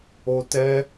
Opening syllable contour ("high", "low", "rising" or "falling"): high